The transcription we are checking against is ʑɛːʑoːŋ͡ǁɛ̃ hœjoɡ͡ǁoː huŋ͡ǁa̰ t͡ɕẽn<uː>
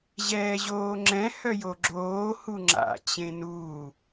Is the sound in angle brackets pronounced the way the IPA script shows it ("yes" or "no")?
yes